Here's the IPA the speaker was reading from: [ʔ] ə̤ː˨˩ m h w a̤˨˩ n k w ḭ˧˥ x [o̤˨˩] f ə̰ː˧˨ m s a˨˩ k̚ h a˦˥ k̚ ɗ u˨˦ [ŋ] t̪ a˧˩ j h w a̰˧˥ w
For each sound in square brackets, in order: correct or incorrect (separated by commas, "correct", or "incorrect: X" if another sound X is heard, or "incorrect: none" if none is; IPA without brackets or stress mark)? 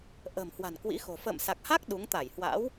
correct, correct, correct